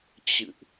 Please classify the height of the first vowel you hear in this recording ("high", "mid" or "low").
high